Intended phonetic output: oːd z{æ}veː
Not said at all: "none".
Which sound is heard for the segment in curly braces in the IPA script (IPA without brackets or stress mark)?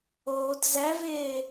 æ